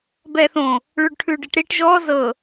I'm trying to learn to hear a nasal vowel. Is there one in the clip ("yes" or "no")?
yes